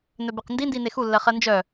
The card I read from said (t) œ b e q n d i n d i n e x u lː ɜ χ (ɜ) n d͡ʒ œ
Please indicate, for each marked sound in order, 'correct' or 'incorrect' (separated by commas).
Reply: incorrect, correct